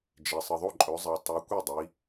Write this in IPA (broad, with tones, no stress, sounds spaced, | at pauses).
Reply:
d͡ʒ e˩ sˤ ɨ˩ ðˤ o˥˩ ǃʼ ɵ˩˧ zˤ e˩ tˤ u˩˧ kʷ e˥˩ dˤ i˩˧